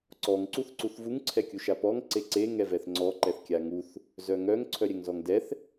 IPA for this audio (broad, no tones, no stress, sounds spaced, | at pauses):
ǀ ɔ ŋ ǀ u θ ǀ u θ v u ŋ ǀʰ ɛ kʲ u ʃ a p ɔ ŋ ǀ e ǀ e ŋ ɛ v ɛ θ ŋ͡ǀ ɔ ǃ ɛ θ kʲ a ŋ u θ | z œ ŋ œ ŋ ǀʰ œ ɾʲ ɛ ŋ z ɔ ŋ d ɛ θ